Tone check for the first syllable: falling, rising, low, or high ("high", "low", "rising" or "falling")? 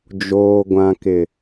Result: low